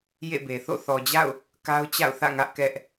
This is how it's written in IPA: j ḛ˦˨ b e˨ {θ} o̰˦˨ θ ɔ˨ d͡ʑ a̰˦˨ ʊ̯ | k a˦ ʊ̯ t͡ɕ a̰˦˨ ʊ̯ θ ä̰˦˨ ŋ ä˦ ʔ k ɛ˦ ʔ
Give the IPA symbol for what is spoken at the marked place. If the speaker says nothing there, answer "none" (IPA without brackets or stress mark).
θ